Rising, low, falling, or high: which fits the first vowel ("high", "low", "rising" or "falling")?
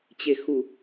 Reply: low